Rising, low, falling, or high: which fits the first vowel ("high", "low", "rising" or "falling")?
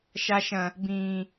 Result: high